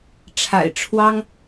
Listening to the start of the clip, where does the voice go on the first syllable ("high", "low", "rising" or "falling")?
low